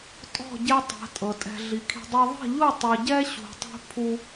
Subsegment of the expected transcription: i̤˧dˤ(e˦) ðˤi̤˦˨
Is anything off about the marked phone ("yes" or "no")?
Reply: no